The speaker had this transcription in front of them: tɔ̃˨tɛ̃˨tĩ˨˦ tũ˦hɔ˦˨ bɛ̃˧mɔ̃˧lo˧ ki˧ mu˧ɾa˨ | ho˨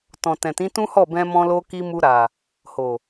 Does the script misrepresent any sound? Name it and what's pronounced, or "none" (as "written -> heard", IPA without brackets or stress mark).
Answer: none